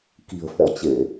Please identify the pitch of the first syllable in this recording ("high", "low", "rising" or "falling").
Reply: low